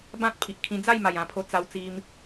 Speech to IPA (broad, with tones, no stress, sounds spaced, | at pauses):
b ã˦ t̚ pʰ i˨ ʔ kʰ ĩ˧ d͡z a˥˧ j m a˨˩ j ã˧ pʰ o˧ t͡s a˧ w t͡s i˧ m